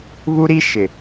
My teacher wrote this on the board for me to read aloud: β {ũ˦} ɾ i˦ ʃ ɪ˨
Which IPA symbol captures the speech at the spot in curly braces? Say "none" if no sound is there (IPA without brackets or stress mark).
u˦